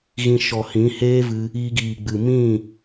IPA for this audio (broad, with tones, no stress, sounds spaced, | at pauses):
ɣ ĩ˧ ʃ ɔ˨ h ĩ˨˦ h eː˦ v ɨ˧ | iː˧ ɡ iː˨ ɡ͡b ɨ˨ m ĩ˦˨